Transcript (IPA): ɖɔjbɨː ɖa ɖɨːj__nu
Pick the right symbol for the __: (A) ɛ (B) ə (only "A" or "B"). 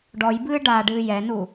A